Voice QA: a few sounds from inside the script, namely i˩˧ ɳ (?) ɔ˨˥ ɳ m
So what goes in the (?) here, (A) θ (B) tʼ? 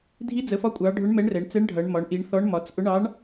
A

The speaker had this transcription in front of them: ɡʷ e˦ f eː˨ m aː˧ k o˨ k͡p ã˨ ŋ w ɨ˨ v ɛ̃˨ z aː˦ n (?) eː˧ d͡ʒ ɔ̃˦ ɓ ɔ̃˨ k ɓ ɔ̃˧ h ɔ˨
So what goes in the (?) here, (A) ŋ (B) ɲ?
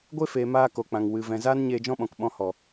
B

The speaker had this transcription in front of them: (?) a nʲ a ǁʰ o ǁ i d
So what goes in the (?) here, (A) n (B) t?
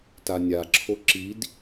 B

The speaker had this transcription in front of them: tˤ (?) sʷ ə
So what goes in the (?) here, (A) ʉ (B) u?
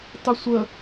A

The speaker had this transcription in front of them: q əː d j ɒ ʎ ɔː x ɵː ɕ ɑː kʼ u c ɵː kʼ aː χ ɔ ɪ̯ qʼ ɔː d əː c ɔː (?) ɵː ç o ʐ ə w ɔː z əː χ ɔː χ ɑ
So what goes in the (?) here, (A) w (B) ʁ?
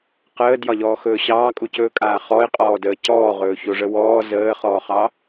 B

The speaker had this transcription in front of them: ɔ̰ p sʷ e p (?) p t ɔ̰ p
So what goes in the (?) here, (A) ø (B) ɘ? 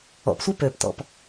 A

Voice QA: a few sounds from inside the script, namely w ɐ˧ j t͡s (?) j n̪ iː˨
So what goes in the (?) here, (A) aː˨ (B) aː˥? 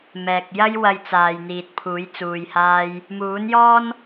A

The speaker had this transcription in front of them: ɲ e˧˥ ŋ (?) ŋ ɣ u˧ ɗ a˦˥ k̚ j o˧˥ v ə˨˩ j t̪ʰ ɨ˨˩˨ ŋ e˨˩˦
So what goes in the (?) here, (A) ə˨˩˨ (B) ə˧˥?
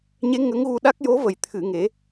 B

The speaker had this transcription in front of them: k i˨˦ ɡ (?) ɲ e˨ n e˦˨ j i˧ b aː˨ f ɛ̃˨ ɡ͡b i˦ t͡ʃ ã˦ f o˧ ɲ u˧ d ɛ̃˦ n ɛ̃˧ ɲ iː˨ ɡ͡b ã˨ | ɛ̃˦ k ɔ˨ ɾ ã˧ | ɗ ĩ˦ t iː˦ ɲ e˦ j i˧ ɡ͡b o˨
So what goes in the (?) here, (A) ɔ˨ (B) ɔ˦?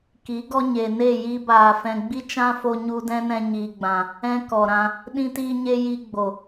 B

